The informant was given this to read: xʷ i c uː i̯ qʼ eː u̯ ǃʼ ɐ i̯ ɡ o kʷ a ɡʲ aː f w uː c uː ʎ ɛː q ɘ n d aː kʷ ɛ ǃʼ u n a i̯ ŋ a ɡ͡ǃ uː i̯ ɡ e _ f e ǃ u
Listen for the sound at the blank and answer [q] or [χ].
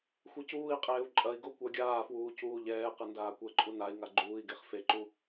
χ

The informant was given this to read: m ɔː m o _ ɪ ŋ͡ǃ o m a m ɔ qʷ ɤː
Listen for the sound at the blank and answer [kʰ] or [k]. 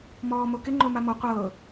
k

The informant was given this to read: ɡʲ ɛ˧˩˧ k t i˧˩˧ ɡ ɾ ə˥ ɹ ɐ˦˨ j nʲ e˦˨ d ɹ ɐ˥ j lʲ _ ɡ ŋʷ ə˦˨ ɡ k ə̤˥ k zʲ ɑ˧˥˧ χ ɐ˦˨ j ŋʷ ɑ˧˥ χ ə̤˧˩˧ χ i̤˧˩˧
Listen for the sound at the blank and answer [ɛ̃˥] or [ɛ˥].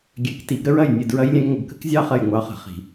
ɛ̃˥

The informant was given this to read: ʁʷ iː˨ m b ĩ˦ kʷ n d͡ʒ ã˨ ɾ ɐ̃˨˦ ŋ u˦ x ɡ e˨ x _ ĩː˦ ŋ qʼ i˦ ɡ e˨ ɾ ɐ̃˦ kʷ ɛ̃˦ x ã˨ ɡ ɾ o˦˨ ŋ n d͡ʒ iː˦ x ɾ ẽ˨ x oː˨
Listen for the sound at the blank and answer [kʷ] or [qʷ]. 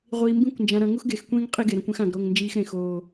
kʷ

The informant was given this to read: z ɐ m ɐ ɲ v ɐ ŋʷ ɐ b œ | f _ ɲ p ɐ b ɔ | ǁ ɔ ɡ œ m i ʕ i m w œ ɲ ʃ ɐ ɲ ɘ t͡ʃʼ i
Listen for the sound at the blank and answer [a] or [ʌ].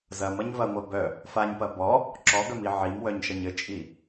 a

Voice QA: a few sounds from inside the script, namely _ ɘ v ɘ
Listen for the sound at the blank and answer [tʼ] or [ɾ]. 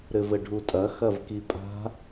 ɾ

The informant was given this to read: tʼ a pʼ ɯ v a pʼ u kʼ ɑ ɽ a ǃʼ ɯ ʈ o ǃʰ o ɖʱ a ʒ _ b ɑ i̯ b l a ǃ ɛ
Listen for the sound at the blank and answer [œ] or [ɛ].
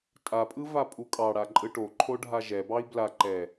ɛ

